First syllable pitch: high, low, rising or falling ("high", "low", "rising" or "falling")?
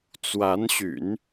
rising